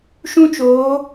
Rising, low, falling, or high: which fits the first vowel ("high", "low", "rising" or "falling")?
high